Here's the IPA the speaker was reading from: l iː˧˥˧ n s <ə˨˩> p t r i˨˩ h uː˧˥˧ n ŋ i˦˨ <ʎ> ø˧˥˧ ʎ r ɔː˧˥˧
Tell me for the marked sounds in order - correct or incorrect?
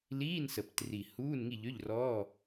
correct, correct

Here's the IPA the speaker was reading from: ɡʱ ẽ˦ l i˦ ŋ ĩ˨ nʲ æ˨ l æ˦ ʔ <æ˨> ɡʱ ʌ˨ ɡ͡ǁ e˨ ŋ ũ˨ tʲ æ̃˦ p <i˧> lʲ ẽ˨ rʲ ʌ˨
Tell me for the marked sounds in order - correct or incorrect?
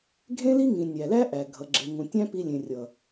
correct, correct

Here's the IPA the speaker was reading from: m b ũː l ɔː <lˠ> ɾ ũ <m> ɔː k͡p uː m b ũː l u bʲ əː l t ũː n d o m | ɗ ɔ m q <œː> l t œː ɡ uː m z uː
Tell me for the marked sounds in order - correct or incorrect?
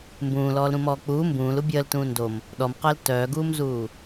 incorrect: l, correct, incorrect: əː

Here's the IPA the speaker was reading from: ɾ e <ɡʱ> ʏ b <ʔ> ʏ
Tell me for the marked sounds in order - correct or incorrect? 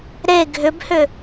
correct, incorrect: h

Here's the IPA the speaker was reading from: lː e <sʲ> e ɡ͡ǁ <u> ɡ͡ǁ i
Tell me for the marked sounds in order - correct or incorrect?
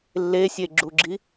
correct, correct

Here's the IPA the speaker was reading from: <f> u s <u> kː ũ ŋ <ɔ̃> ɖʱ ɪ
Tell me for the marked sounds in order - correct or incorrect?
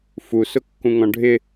correct, incorrect: ʊ, correct

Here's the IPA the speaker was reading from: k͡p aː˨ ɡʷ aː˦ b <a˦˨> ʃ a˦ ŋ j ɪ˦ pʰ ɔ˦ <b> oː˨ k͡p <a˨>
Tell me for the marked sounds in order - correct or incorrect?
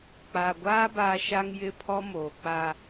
incorrect: a˦, incorrect: m, incorrect: a˦

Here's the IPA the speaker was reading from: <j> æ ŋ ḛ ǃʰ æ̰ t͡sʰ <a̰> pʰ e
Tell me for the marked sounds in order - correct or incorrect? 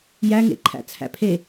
correct, incorrect: æ̰

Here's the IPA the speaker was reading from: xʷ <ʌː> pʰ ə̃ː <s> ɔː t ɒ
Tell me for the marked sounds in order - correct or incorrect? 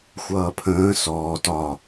correct, correct

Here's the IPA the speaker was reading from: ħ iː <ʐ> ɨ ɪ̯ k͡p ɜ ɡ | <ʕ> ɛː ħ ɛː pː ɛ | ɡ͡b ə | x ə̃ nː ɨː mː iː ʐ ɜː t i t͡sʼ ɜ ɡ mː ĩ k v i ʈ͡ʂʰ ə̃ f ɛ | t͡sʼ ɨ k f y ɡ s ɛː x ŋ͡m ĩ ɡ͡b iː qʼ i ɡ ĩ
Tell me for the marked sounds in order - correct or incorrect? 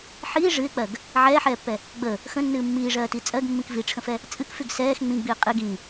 correct, correct

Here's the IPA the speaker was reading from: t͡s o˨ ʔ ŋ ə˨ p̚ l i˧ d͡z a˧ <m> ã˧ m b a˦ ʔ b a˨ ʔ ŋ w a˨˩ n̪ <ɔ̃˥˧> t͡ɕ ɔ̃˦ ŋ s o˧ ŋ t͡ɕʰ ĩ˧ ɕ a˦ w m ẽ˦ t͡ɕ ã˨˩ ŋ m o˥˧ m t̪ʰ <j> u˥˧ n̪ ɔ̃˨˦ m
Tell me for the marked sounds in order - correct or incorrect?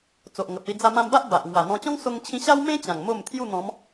correct, incorrect: ɔ̃˧, correct

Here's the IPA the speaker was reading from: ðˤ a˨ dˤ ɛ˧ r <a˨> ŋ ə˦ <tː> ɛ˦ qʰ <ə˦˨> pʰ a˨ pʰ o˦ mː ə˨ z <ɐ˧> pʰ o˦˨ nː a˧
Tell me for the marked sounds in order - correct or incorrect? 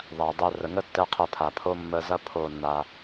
incorrect: ə˨, correct, correct, correct

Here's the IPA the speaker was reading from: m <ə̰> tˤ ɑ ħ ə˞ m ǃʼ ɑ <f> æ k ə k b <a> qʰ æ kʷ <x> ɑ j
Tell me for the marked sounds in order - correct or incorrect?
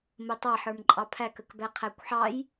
incorrect: ə, incorrect: pʰ, incorrect: æ, incorrect: ħ

